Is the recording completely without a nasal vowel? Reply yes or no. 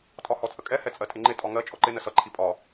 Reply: yes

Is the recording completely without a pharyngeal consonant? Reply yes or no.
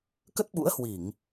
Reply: yes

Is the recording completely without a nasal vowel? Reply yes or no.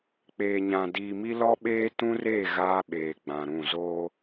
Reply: no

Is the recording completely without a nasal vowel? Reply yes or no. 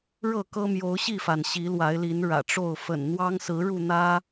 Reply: yes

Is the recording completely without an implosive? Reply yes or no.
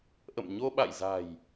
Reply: no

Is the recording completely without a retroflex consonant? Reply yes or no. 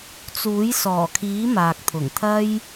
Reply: yes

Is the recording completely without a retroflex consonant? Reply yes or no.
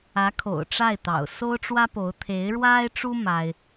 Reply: no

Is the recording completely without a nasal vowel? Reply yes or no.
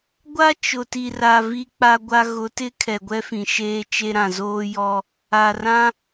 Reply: no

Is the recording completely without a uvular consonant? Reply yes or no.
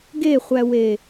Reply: no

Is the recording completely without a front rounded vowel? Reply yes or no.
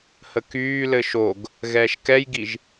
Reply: no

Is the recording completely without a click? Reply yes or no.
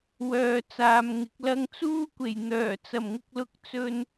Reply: yes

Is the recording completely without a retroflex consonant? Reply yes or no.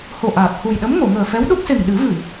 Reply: yes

